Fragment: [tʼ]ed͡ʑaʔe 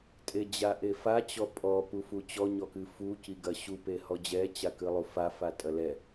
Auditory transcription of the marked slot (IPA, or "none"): tʼ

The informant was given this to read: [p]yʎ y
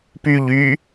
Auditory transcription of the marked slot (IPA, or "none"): p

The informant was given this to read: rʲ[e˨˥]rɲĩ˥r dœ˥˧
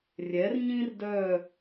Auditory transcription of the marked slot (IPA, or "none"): ɛ˨˥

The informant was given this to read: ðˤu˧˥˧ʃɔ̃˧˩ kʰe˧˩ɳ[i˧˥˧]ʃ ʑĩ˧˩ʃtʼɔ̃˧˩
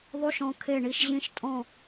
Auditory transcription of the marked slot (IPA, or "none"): i˧˩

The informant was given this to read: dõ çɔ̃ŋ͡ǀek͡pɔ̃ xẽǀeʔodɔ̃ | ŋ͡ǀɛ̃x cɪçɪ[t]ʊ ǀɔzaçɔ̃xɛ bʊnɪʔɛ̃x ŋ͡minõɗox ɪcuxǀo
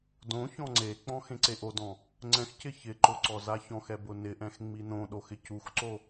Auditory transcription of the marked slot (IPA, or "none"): ǃ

